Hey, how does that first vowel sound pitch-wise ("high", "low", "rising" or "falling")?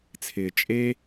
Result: low